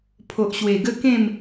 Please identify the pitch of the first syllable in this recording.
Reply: low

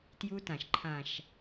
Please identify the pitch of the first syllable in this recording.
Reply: high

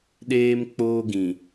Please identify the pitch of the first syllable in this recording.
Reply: high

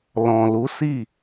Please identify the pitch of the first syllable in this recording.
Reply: low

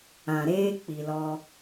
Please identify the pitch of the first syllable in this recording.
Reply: low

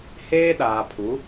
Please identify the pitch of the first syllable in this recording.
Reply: high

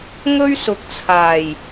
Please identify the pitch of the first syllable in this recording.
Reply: high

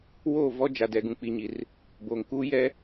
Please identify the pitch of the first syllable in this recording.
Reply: falling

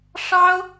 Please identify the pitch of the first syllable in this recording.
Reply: high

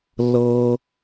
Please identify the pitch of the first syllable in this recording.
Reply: high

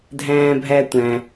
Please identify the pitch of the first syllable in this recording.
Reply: high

